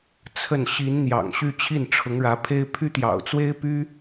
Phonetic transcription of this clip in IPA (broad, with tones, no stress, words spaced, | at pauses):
t͡sʰə˥˩n ɕi˧˥nn̪jɑ̰˨˩ŋɕy˥˧ t͡ɕʰi˥˩nʈ͡ʂʰʊ˧˥ŋɻä˧˥pʰe˥ɪ̯ pʰy˥t̪jɑ̰˨˩ʊ̯t͡swe˥ɪ̯py˥